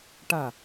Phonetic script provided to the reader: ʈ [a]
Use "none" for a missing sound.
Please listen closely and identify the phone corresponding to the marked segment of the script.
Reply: a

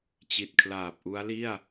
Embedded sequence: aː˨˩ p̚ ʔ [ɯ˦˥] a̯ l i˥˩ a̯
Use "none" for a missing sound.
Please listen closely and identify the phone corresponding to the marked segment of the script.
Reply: u˦˥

